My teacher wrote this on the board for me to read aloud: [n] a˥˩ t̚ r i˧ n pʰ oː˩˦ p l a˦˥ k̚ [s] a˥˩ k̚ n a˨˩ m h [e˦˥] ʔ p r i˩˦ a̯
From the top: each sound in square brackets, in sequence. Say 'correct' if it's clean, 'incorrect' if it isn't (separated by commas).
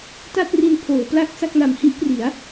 incorrect, correct, incorrect